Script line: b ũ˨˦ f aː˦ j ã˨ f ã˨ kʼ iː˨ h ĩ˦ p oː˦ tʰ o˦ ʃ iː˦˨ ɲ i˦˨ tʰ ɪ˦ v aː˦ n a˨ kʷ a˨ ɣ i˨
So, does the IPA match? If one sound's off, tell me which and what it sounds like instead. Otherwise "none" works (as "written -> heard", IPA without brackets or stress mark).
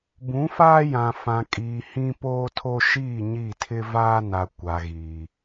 none